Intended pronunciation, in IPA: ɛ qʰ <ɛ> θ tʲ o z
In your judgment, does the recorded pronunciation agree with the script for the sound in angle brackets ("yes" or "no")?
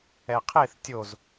no